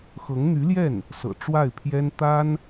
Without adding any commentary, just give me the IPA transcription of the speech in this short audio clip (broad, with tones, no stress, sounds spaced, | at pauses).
x ɤ˧˥ ŋ n̪ y˧˥ l j ɛ˥˩ n | s ɤ̰˨˩ ʈ͡ʂ w a˥˩ ɪ̯ pʰ j ɛ˥ n t̪ a˥ n